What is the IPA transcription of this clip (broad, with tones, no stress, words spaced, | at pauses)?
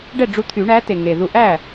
ɖɛ˥˩ɖ͡ʐu˧t̪ʰy˨˩˦ ɳæ˨˥te˨˩ŋe˨˩ðu˧ ʔæ˥˩